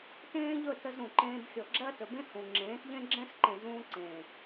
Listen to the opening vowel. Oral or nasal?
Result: nasal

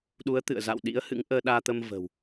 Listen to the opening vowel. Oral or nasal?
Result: oral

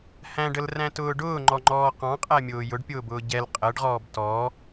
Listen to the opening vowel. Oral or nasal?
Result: nasal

